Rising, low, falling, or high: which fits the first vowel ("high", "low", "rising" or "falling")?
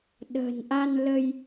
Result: low